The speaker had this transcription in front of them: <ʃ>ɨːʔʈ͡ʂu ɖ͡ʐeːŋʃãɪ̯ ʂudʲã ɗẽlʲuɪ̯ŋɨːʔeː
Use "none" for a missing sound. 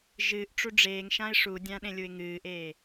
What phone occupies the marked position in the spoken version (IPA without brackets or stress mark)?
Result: ʒ